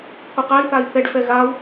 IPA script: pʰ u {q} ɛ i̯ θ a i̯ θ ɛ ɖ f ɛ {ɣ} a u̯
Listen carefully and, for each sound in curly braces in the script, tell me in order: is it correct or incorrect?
correct, correct

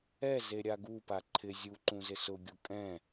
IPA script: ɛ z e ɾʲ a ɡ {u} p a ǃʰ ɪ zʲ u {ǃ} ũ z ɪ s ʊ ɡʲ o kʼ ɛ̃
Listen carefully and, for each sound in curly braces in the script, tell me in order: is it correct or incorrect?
correct, correct

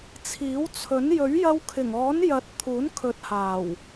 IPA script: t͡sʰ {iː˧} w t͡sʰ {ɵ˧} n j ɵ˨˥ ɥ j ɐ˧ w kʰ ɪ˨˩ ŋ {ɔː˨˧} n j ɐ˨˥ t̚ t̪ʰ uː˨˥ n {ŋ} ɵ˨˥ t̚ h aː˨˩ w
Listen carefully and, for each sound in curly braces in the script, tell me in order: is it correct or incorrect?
incorrect, incorrect, incorrect, incorrect

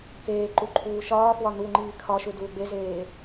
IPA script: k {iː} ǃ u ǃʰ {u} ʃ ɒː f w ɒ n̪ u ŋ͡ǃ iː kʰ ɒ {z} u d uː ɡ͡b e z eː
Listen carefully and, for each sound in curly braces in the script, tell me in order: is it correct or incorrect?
incorrect, incorrect, incorrect

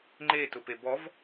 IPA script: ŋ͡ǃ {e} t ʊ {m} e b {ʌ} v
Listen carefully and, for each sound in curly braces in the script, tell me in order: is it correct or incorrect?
correct, incorrect, incorrect

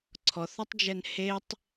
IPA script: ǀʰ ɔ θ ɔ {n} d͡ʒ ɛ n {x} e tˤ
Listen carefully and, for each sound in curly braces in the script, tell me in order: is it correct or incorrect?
incorrect, incorrect

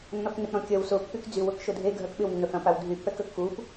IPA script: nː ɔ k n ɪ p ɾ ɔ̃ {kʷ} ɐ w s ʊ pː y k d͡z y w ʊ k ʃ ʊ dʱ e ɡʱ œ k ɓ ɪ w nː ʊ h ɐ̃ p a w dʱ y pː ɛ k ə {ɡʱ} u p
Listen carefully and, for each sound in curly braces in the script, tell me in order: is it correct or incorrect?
incorrect, incorrect

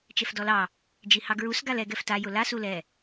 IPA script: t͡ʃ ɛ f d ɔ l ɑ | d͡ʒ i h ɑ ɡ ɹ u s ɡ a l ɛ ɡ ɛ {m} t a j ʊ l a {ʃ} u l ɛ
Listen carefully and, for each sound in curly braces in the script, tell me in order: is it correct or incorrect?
incorrect, incorrect

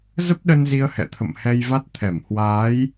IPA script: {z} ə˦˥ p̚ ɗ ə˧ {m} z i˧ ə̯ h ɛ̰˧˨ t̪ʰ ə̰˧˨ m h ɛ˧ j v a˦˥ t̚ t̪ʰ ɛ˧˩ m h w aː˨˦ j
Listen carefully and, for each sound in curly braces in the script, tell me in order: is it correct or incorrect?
correct, incorrect

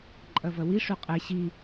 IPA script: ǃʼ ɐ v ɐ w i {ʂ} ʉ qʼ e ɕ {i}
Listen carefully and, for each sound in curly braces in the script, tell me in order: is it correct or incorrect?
correct, correct

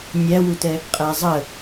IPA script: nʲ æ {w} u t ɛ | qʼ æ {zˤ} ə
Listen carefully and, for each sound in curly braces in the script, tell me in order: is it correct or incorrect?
correct, correct

